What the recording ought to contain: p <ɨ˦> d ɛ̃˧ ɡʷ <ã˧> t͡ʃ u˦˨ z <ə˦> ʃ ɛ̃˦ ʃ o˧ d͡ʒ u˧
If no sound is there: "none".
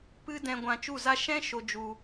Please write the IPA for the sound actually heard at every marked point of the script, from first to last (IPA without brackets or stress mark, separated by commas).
ɨ˦, ã˧, a˦